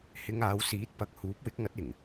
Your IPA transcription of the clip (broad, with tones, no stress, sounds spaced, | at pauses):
h ɪ˧ ŋ aː˨˧ w s iː˨˥ t̚ p ɐ˧ k̚ h uː˨˥ p̚ w ɪ˨˥ k̚ ŋ ɐ˨˥ t̚ ɪ˨˩ ŋ